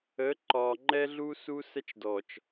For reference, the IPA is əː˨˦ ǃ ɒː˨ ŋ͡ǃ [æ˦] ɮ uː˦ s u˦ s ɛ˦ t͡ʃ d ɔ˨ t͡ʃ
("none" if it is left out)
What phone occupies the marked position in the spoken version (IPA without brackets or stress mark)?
ɛ˦